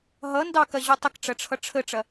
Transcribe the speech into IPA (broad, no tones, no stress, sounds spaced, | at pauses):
ɦ ʌ n d ɑ k ɐ ʑ u tˤ ə k ʈ͡ʂ ɐ ʈ͡ʂʰ ʌ ʈ͡ʂʰ ə ʈ͡ʂ ɐ